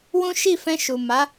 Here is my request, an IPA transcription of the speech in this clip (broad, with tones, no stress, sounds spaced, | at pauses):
w ũ˦ ʃ i˦˨ f ɛ̃˧ ʃ u˨ m a˨˦